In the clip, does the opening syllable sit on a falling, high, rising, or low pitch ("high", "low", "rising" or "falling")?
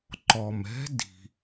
low